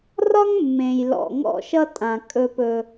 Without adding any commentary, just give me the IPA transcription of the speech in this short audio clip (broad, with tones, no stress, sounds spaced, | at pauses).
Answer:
r ɒ˦ ŋ mː ẽ˨ j l ɔ̰˨ ŋ ɔ̰˦˨ ʃ ʌ˦ tʼ ã˨ kʼ ɵ˦ p ɵ˦